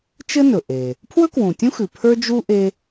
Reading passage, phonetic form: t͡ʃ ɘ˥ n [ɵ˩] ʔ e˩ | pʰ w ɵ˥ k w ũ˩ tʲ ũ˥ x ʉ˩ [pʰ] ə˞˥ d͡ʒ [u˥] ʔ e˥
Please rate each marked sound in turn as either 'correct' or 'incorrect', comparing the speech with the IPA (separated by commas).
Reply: correct, correct, correct